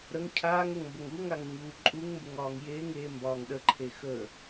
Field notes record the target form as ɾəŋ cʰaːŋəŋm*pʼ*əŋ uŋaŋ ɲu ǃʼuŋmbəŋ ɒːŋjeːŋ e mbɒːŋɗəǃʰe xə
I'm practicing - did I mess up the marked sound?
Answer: yes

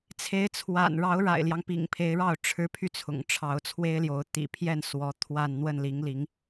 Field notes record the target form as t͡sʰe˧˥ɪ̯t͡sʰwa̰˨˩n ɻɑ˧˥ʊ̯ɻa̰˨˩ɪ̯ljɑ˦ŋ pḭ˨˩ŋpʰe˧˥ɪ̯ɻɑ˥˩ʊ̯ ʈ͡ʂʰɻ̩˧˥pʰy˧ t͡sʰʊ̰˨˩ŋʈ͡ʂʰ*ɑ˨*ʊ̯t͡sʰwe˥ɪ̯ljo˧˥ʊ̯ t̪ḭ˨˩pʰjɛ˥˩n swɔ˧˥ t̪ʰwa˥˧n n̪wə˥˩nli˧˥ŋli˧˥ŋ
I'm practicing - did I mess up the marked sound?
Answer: yes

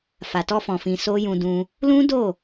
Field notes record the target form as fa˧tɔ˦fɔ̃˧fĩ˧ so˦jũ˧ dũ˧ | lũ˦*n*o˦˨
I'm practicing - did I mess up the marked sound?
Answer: yes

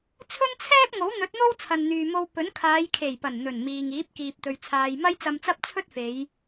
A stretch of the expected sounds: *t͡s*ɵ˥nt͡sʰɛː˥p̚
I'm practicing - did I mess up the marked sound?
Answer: yes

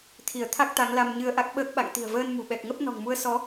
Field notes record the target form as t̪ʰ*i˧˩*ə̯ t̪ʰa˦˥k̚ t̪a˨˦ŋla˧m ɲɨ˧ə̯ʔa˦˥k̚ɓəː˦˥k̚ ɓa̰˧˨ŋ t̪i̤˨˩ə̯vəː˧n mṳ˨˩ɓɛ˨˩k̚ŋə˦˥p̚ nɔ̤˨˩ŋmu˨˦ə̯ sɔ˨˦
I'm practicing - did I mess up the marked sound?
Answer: no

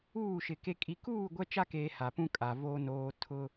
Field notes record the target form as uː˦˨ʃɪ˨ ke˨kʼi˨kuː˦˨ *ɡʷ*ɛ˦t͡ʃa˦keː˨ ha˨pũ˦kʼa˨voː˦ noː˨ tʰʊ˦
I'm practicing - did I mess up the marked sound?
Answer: no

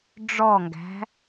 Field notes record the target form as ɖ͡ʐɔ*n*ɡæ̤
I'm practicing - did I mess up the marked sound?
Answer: yes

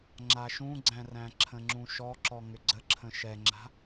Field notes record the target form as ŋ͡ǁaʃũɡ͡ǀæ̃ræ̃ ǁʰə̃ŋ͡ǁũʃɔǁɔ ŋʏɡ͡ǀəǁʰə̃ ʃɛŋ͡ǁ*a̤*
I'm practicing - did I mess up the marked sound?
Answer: no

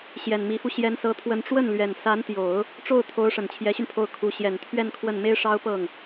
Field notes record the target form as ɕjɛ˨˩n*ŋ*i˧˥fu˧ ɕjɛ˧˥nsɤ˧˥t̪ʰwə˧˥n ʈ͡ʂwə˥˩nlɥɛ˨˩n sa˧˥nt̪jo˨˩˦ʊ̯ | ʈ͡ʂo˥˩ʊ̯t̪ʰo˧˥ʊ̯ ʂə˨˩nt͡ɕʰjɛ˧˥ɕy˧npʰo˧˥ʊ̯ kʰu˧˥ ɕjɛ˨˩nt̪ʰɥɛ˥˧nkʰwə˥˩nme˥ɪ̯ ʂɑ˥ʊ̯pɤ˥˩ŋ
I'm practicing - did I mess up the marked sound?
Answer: yes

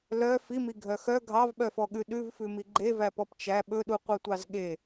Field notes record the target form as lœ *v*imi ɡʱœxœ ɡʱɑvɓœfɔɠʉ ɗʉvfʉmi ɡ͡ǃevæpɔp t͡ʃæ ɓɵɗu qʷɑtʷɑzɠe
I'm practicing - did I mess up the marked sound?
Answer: yes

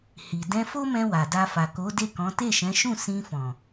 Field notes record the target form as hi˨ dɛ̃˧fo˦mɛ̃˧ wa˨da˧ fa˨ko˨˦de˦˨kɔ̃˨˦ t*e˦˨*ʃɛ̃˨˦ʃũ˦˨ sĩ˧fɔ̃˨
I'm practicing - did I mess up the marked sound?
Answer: no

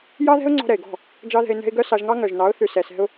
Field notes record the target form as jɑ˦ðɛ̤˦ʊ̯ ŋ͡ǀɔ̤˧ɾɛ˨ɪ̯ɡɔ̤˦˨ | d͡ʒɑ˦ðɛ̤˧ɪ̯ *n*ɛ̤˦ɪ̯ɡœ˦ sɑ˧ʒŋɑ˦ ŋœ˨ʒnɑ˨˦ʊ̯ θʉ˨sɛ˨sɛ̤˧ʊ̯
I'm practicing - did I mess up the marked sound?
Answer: no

